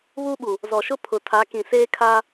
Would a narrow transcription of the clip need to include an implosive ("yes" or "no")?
yes